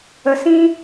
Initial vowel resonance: oral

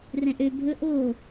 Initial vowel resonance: nasal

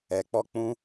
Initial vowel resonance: oral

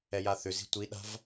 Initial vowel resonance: oral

